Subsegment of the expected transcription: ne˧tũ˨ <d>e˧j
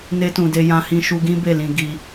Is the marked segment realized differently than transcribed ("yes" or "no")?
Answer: no